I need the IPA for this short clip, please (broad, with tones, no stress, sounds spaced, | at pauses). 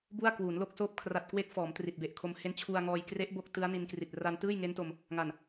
b u˥˩ a̯ k w uː˩˦ n l o˥˩ k̚ s oː˦˥ p̚ kʰ r a˨˩ t̚ k w e˦˥ k̚ f ɔː˩˦ m t r i˨˩ t̚ b e˨˩ ʔ kʰ o˧ m h e˦˥ n t͡ɕʰ u˧ a̯ ŋ ɔː˧ j k r e˦˥ ʔ b o˦˥ k̚ t ɯ˦˥ a̯ n i˧ n k r i˨˩ t̚ r a˧ n t ɯː˥˩ j ŋ e˦˥ n t o˧ m | ŋ a˨˩ n